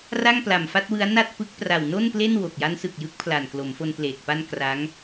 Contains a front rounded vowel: no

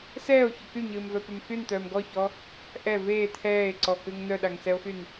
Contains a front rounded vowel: yes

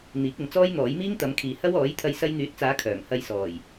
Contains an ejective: no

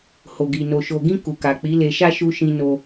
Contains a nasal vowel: yes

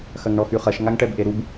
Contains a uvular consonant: yes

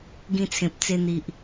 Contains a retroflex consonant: no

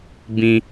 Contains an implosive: no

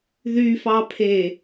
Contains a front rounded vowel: yes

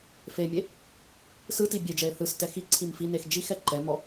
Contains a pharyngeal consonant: no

